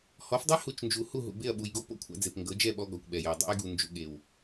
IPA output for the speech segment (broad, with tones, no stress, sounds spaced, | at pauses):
h ɔ˨˦ f dˤ e˦ h u˨ t͡ʃ n d͡ʒ u˨ h u˦˨ ɦ ṵ˨ b e˦˨ ɐ̯ ɓ u˨ j ɡ o˦ p o̰˦ kʷʰ a̰˦ d͡z e˨ p ŋ ɡ ɤ˨˦ d͡ʒ ɛ˦˨ ɓ ɔ˦ ɡ ɔ˨ kʷ ɓ ɛ˨ j ɤ˨ dˤ ṵ˦ j ɡ u˨ n d͡ʒ ṵ˨ ɠ e˨ w